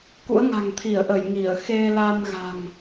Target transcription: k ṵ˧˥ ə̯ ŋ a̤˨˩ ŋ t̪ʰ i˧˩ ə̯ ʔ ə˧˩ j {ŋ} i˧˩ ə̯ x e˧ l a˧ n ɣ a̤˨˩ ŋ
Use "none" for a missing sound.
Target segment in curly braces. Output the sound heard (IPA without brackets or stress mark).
ŋ